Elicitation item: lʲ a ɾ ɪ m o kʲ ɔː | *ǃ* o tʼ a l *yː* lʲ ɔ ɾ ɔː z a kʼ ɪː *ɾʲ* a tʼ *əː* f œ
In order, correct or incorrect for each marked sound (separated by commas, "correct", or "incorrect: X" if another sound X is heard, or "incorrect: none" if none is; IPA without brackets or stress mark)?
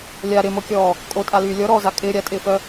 incorrect: kʼ, correct, correct, incorrect: ɪː